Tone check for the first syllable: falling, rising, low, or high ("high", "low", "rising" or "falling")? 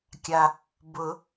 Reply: low